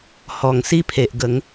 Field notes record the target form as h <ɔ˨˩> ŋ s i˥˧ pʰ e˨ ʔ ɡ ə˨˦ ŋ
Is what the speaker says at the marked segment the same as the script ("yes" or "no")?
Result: yes